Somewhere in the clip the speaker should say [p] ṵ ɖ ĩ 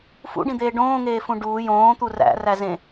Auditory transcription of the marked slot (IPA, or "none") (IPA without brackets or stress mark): f